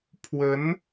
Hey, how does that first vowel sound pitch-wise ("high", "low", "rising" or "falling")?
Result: rising